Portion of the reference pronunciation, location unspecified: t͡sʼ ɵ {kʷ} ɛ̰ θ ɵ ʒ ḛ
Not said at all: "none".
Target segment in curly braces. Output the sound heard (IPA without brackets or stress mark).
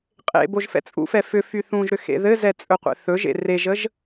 qʷ